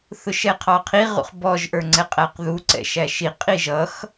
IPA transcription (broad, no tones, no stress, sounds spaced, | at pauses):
θ ʊ ʃ ɛ qʰ ɑ qʰ i ʁ ṵ χ b ɔ ʒ ʔ ə˞ ŋ͡ǀ ɛ qʼ æ q ð u ǀ ɛ̰ ʃ æ ʃ i qʼ i ʒ ʌ x